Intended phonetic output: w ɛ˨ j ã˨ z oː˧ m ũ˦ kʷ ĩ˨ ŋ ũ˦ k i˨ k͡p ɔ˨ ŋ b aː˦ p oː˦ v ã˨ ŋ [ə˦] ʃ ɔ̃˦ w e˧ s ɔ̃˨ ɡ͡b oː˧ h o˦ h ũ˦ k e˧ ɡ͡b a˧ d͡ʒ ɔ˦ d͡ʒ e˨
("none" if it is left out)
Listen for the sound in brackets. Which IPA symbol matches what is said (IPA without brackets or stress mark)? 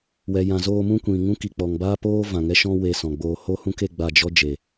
ɛ˦